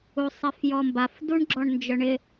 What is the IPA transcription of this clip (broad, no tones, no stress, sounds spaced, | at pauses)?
u sˤ ɛ f j ɔ m b a f d u ɳ ɡ͡ǁ ɔ ɳ n d͡ʒ œ ɳ ɪ